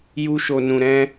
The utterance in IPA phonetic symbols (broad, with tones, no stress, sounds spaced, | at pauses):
j u˦ ʃ o˦ n ũ˦ ɾ ɛ̃˦